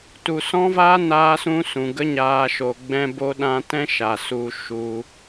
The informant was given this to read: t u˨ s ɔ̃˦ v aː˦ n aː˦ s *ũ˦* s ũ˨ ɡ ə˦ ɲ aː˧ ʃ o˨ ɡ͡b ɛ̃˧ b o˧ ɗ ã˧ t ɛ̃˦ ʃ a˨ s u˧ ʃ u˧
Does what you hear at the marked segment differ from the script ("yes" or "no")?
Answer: no